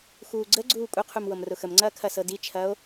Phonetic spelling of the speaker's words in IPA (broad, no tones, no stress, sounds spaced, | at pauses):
x uː ɡ͡ǀ ə ɡ͡ǀ uː kʷʼ ə qʰ u m w ɤ m r ʊ x ə m ŋ͡ǀ ɐː kʰ ɐ s ɤ d i t͡ʃʰ ɐː o̯